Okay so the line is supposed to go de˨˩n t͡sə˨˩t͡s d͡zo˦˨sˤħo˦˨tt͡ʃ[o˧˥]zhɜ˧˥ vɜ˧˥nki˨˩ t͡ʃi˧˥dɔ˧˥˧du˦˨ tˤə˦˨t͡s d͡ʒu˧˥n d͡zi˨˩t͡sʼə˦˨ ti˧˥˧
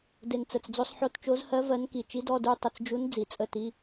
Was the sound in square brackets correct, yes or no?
yes